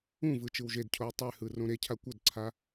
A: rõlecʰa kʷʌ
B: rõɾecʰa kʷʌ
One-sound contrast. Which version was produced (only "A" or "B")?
B